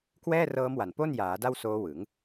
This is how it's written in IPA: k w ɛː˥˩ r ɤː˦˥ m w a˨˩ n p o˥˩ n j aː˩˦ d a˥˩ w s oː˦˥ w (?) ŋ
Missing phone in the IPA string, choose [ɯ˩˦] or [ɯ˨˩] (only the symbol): ɯ˩˦